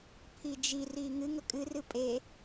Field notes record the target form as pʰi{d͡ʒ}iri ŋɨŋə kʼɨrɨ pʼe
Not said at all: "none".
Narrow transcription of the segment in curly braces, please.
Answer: d͡ʒ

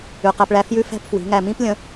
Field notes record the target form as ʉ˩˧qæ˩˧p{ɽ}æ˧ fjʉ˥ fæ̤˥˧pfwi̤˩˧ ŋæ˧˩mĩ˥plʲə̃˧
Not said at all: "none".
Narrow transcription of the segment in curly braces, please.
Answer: ɭ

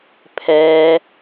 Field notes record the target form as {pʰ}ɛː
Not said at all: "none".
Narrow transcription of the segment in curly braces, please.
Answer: pʰ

